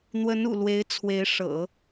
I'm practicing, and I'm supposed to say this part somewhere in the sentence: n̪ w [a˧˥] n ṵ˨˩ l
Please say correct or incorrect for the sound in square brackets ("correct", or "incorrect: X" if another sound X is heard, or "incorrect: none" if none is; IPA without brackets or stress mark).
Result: incorrect: ə˧˥